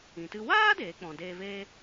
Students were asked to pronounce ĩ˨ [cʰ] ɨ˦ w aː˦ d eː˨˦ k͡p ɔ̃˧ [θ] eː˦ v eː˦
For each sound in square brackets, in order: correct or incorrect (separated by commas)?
incorrect, incorrect